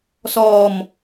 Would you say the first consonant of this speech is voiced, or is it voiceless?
voiceless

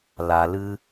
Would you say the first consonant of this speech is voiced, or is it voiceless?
voiced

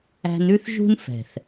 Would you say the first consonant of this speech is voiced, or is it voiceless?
voiced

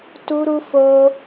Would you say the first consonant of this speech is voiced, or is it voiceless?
voiceless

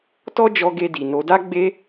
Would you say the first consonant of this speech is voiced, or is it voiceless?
voiceless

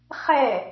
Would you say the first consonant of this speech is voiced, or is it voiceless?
voiceless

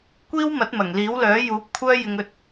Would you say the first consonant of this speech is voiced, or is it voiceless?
voiceless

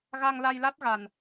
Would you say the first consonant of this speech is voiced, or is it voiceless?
voiced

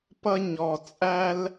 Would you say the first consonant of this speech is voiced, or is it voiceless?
voiceless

